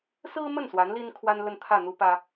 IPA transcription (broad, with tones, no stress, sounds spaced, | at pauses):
s ɹ̩˥ m ə˥˩ n s w a˧˥ n l i˥ n kʰ w a˥ n l ə˥˧ n t̪ʰ ä˥˩ n̪ u˥ p ä˥